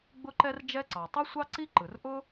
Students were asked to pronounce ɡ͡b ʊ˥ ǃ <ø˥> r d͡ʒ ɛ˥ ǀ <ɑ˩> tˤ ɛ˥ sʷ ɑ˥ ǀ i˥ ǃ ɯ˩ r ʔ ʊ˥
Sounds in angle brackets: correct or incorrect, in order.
incorrect: ɛ˥, correct

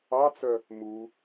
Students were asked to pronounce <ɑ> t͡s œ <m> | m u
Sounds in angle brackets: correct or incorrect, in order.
correct, incorrect: none

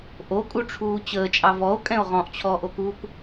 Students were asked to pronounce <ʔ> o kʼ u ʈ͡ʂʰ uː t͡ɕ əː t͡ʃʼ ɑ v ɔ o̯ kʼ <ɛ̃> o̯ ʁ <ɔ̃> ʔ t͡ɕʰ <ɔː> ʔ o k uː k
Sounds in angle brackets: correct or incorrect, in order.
correct, correct, correct, correct

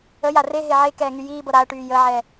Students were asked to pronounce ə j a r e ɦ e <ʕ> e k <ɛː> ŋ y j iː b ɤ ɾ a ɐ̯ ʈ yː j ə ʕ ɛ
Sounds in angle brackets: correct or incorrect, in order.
correct, correct

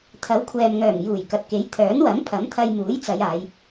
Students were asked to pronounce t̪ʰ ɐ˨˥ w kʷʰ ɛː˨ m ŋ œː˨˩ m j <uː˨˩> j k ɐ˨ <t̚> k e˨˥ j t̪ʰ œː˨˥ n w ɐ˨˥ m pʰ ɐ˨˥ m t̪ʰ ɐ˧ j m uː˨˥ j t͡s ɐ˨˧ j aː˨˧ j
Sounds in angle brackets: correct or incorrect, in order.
correct, correct

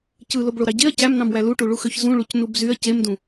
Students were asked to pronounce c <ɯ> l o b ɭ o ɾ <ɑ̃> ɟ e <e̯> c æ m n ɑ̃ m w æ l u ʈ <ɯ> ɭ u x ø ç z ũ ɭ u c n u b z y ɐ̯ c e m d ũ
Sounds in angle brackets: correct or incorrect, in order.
correct, incorrect: ɑ, incorrect: ɐ̯, incorrect: u

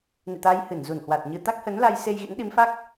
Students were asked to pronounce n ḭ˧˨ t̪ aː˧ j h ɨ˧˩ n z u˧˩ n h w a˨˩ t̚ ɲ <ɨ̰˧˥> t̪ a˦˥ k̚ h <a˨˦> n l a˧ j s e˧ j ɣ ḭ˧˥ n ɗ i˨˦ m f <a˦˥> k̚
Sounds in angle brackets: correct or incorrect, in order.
incorrect: ɨ˧, incorrect: ə˨˦, correct

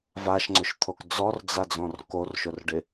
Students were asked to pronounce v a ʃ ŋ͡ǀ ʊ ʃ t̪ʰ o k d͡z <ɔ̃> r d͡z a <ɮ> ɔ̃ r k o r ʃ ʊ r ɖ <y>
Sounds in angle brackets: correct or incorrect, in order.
incorrect: ɔ, incorrect: d͡z, incorrect: ɪ

